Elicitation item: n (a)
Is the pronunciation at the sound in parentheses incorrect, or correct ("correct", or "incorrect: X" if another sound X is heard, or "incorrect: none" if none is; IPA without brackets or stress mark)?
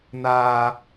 incorrect: aː